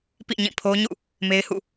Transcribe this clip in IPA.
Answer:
pḭ˦˨ɲĩ˦˨pʰo˦ɲṵ˦˨ | me˦ɪ̯hṵ˦˨

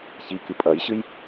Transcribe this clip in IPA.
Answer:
çikɨ pʼɐjɕɨj

